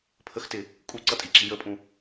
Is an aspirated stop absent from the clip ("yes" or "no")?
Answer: no